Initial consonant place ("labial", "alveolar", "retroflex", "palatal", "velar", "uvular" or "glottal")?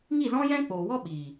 velar